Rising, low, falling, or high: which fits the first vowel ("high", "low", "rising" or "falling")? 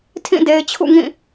falling